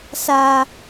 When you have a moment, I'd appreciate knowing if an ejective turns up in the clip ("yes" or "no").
no